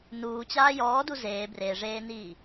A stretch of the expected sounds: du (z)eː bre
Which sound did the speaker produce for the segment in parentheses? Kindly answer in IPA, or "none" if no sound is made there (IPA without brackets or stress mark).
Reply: z